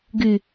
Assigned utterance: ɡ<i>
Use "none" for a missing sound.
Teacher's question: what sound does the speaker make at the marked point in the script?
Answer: y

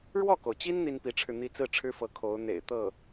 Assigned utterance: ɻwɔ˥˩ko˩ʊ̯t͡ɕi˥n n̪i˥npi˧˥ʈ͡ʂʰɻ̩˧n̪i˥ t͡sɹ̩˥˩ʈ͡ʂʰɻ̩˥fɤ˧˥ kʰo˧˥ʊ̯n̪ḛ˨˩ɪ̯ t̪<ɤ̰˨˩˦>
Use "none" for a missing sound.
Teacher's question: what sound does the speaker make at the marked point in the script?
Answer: ɤ˥˩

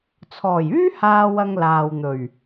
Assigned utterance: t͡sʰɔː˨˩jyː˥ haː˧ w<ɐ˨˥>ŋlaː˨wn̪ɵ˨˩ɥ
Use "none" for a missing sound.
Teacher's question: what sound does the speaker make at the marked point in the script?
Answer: ɐ˧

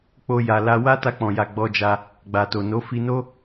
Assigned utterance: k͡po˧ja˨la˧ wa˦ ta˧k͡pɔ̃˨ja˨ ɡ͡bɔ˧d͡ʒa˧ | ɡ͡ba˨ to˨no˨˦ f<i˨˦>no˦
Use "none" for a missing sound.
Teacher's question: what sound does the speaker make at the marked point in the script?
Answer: i˧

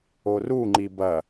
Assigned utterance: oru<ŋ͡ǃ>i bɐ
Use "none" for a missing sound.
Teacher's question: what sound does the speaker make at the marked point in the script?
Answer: ŋ͡ǃ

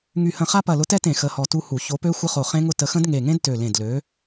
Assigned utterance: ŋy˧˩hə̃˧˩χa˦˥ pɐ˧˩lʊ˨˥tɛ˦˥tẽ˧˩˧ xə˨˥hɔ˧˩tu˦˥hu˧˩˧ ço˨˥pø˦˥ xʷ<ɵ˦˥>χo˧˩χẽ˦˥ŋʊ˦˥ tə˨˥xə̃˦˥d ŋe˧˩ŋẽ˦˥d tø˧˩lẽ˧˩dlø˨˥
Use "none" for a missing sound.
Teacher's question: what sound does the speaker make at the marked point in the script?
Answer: ə˦˥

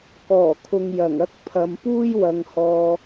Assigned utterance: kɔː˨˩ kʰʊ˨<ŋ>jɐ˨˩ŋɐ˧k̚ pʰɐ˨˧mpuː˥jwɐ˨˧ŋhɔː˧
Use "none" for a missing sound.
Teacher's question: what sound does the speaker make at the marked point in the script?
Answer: ŋ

